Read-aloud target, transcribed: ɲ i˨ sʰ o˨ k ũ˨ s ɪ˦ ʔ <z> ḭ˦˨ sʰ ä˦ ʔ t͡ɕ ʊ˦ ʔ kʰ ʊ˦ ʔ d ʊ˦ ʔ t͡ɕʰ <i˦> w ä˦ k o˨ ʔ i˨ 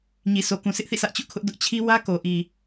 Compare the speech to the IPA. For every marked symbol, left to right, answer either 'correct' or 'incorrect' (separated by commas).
incorrect, correct